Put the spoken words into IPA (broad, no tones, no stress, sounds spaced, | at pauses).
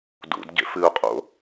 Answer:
d ṵ d ɟ ḛ f ɨ ʊ̯ qʼ o̰